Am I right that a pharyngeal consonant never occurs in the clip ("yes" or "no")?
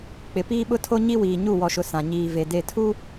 yes